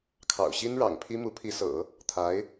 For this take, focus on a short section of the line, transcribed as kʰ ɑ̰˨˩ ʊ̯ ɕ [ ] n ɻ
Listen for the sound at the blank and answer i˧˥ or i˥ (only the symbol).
i˥